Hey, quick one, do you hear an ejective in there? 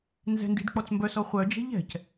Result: no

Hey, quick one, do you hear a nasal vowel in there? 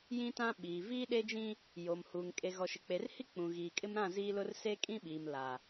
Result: yes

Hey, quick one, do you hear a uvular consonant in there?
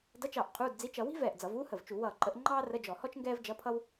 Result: yes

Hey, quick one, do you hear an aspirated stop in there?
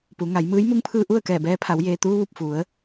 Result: yes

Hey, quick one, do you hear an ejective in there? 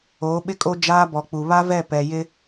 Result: yes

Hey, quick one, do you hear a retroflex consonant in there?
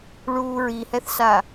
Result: yes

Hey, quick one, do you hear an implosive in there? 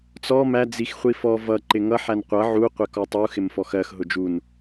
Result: no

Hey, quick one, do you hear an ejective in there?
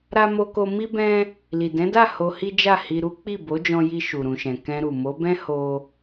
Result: no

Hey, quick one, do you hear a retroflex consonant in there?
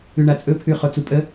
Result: yes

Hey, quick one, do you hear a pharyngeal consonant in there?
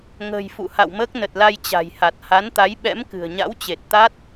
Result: no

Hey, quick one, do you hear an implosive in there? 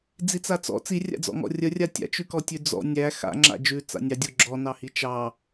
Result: no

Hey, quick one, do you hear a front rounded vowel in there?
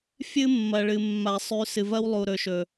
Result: no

